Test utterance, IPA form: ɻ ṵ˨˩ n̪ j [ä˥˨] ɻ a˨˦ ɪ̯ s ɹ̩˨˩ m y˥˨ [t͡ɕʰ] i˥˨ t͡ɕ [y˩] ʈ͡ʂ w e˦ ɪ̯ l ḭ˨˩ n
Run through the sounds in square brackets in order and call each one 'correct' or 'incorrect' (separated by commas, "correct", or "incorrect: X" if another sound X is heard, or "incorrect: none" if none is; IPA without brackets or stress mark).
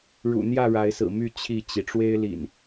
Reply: correct, correct, incorrect: i˩